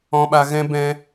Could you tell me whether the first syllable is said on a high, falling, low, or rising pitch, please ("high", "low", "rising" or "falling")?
low